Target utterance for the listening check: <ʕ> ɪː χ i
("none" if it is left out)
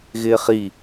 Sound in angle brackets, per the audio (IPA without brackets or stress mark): ɣ